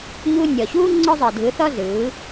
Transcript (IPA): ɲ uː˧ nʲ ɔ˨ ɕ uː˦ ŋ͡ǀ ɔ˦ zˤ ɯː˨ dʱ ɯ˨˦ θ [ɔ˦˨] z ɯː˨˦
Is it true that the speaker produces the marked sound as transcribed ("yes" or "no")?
no